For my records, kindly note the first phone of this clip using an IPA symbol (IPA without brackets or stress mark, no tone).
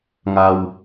ŋ